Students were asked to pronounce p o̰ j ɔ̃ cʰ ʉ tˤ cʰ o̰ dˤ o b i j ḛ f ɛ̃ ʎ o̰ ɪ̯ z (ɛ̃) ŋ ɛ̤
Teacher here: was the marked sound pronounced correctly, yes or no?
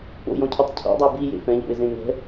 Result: no